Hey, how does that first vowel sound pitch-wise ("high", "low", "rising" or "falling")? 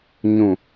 low